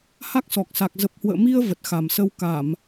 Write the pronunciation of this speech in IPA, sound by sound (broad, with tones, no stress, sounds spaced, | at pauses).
h a˦˥ k̚ s ɔ˨˩ k̚ s a˨˩ k̚ z ə˨˩ p̚ h w ə̰ː˧˨ m i˧ ə̯ v ə˨˩ t̚ x a˨˩ m s ə˧ w k a˧˩˨ m